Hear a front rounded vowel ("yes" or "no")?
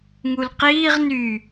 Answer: yes